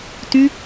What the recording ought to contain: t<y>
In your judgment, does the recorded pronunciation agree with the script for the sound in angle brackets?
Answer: yes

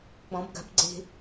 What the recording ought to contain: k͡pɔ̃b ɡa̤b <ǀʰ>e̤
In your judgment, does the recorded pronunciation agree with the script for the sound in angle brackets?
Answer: no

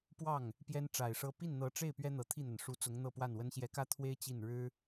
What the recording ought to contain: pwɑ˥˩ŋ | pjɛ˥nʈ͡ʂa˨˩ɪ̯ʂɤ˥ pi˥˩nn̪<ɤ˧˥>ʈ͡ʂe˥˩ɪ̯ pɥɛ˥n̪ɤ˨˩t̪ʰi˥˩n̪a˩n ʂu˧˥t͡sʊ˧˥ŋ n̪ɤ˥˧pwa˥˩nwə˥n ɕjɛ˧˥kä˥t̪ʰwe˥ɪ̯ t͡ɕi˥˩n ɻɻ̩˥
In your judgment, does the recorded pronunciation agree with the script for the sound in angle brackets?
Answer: yes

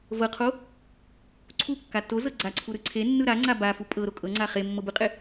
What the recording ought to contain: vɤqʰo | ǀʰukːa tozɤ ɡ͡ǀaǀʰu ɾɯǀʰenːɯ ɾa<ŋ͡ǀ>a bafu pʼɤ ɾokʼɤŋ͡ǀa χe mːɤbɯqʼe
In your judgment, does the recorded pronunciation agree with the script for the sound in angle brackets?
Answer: yes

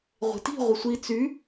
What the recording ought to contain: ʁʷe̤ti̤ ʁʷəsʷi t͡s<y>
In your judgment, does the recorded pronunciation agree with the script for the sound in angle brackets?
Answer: yes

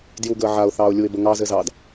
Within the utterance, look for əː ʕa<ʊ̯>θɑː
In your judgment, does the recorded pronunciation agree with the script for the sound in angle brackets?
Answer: yes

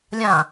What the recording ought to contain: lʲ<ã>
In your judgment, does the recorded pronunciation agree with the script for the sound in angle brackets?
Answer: yes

